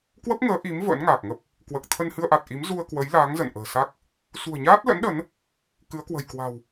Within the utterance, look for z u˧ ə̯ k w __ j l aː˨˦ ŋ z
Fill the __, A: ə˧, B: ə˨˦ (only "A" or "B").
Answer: B